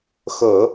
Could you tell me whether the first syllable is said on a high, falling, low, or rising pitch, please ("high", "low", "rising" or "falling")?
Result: low